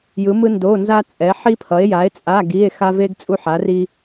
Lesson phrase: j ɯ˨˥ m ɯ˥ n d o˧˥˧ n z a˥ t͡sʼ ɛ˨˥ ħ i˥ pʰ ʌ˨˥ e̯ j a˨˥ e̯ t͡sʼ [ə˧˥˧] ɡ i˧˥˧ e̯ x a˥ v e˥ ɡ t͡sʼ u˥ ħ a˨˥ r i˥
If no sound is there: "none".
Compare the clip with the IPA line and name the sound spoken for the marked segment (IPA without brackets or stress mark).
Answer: a˧˥˧